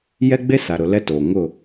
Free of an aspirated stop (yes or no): yes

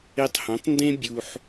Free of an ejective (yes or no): yes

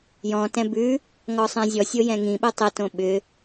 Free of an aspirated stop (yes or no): yes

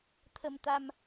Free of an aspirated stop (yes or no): no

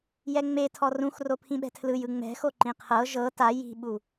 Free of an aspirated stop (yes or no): no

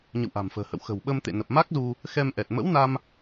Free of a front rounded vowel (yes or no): yes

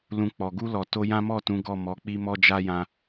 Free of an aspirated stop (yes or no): yes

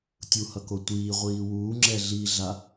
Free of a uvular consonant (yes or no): no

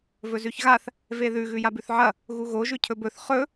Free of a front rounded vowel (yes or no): yes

